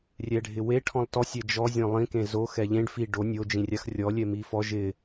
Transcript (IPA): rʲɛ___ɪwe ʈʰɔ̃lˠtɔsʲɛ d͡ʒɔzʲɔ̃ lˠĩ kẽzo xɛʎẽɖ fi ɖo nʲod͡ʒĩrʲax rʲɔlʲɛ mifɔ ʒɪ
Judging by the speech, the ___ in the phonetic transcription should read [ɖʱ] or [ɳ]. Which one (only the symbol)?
ɖʱ